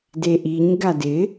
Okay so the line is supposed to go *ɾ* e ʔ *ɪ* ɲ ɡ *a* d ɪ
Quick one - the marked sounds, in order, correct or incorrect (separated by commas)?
incorrect, incorrect, correct